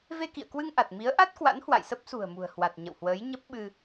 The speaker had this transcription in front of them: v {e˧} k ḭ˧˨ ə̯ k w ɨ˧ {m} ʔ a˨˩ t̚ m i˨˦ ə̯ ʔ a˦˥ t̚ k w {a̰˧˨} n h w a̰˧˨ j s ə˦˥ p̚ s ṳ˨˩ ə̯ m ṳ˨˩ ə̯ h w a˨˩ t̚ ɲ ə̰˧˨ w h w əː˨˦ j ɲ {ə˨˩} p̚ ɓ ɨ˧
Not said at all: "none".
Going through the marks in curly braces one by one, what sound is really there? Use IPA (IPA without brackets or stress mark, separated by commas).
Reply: e˧, ŋ, a̰˧˥, ə˦˥